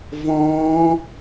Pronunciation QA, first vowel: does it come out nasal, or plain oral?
nasal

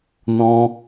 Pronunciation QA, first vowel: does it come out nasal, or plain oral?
nasal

